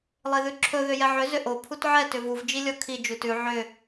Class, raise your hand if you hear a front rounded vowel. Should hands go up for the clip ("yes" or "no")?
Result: yes